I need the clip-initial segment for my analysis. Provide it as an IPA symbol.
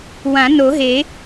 w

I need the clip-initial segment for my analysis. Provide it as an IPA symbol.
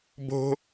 b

